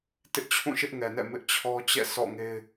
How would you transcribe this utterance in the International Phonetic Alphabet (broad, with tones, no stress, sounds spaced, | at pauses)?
t ɪ˦ ʔ t͡ɕʰ ũ˦˨ ʃ ɪ˦ ʔ ŋ ɛ˨ n ɛ̰˦˨ m ɪ˦ ʔ t͡ɕʰ ɔ˦ t͡ɕ ɛ̰˦˨ sʰ ɔ̰˦˨ ŋ e˦ ɪ̯